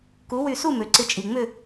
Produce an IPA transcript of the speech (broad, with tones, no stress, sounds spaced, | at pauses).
k u˩˥ w y˧˩ s u˥˨ m ø˩ ǀ ɪ˧ t͡ʃʼ i˩ ŋ͡m ʏ˥˨